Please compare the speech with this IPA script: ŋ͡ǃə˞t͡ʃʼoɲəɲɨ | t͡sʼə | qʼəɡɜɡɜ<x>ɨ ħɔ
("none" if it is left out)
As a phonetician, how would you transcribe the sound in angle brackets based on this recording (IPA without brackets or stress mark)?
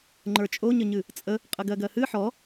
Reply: h